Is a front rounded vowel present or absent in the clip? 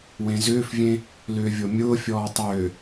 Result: present